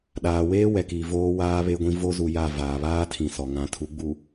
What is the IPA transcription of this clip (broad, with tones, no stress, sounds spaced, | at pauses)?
ɗ aː˨ w eː˦ w ɛ˨ k iː˨ v oː˦ w aː˦ β e˦ ɡʷ ĩ˦ v o˦ z u˨ j a˦˨ v aː˨ β aː˦ tʰ ĩ˨ s ɔ˨ ŋ ã˨ tʰ u˨˦ ɡ͡b u˨